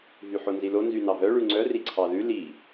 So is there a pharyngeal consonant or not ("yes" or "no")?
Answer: yes